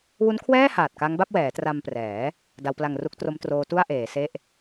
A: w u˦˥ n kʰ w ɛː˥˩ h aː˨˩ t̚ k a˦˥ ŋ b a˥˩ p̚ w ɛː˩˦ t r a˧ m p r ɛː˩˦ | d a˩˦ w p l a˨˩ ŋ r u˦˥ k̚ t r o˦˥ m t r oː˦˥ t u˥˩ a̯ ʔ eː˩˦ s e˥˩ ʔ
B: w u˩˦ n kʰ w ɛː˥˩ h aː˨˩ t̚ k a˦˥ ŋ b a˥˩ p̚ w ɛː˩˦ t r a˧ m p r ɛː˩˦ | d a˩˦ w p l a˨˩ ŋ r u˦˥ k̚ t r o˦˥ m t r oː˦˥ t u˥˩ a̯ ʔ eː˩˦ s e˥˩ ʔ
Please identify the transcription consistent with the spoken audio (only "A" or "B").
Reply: A